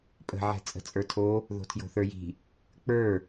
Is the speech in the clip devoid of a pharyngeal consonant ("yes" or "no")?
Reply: no